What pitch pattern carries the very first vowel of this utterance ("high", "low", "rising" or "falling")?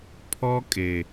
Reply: high